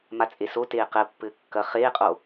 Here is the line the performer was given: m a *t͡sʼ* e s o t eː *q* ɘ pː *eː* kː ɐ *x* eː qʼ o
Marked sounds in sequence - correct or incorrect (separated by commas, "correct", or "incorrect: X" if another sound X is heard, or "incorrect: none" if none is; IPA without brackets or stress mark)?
correct, correct, incorrect: ɘː, incorrect: χ